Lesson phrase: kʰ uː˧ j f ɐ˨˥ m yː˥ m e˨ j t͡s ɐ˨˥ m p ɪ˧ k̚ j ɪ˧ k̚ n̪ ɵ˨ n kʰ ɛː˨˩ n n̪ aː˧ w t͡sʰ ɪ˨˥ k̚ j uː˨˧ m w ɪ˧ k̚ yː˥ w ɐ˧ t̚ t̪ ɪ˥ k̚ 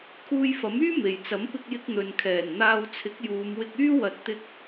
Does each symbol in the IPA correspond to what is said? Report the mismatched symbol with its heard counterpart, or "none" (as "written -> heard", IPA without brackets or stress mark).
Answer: none